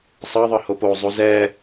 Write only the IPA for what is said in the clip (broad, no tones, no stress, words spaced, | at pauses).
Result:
sˤɤðˤɤ hopozˤu zɛ